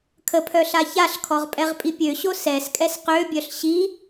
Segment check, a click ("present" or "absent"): absent